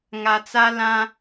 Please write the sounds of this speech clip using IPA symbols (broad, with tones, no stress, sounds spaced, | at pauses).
ŋ a˨ t͡s a˦ l ã˦